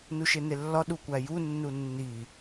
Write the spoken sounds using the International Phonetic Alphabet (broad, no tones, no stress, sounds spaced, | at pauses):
n u ʃ e n e lː ɒ ɗ u kʷ æ j u nː u nː i